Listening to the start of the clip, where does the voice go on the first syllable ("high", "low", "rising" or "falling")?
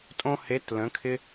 high